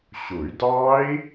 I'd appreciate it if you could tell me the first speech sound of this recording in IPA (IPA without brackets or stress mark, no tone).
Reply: ɕ